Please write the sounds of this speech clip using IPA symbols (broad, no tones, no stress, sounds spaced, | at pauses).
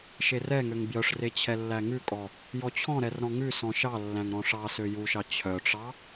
ʃ e r ɛ ŋ ø ŋ b j œ ʂ r e t͡ɕʰ ɛ lː æ ŋ ʉ kʼ ɔ | j ɔ t͡ɕʰ ɔ̃ ɾ ɛ r ɾ ɔ̃ ŋ ʉ s ɔ̃ ʃ ɑ lː æ̃ ŋ ɾ ɔ̃ ʂ ɑ s ø j u ʃ ɑ t͡ɕʰ œ ʈ͡ʂ ɑ